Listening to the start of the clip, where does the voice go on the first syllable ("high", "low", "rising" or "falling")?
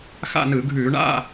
falling